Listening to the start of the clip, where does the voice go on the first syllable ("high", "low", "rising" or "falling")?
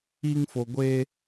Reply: high